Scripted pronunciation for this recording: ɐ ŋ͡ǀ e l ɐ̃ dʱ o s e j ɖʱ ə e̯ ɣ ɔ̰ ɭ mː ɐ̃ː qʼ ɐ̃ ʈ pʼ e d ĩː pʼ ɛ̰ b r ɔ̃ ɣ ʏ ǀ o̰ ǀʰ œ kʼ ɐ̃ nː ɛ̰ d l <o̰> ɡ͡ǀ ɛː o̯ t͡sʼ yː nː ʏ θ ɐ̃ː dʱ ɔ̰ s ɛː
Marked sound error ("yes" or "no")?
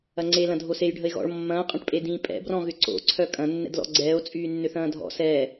yes